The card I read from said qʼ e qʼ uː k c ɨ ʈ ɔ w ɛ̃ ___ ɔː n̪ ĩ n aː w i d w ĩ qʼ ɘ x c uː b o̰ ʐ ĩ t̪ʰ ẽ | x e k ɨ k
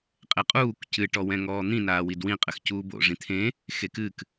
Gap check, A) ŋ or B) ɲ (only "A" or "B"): A